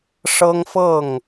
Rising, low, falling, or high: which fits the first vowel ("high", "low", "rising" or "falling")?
high